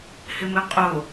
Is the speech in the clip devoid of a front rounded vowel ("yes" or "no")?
yes